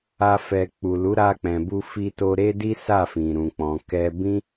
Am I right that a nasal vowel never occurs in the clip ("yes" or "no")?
no